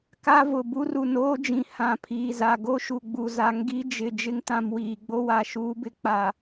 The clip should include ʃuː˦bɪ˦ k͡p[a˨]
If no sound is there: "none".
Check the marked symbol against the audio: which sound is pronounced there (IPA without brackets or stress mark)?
a˨